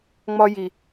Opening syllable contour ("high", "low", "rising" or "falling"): high